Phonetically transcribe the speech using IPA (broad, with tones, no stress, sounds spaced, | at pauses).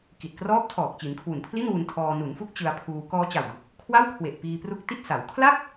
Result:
k i˨˩ t̚ k r ɔː˦˥ p̚ tʰ ɔː˨˩ k̚ t͡ɕ i˩˦ n kʰ w u˨˩ n pʰ l i˥˩ n w u˧ n tʰ ɔː˧ n u˩˦ n f u˦˥ k̚ t͡ɕ ɯ˧ a̯ pʰ uː˧ k ɔː˧ t͡ɕ a˨˩ w d u˨˩ k̚ | kʰ w a˥˩ w kʰ w e˨˩ ʔ p iː˧ p r u˦˥ k̚ t i˥˩ t̚ s a˩˦ w kʰ l a˥˩ k̚